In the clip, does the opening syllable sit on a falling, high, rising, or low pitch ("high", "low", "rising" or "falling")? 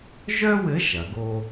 high